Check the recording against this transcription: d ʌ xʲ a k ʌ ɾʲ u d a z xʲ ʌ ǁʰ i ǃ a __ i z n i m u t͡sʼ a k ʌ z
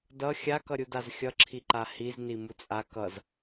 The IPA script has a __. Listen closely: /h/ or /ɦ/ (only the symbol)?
h